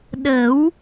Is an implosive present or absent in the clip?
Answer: present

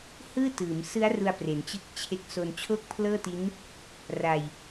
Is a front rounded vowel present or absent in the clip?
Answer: absent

